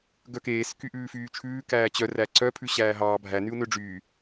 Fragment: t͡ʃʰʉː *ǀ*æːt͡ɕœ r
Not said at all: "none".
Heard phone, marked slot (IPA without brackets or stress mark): k